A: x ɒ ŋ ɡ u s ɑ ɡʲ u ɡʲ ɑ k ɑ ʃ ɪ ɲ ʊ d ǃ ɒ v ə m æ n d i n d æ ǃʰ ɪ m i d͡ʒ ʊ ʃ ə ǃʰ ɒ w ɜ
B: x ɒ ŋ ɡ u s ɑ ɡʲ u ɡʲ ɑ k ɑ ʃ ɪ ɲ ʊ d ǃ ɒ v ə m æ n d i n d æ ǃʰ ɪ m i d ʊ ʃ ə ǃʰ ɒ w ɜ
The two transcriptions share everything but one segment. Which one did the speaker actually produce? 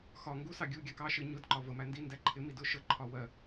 B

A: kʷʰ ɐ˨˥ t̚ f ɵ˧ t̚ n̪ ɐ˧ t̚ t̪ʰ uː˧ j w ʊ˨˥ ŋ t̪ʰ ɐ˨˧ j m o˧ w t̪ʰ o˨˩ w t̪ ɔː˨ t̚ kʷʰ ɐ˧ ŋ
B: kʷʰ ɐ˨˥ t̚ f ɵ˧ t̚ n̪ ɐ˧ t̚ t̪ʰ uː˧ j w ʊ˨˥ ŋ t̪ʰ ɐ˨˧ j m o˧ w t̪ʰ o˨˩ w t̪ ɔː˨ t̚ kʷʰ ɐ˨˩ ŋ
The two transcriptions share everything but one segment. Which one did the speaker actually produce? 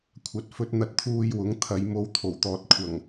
B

